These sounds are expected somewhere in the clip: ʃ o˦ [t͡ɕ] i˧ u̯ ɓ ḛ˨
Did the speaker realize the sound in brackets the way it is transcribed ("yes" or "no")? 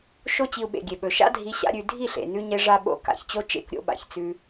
yes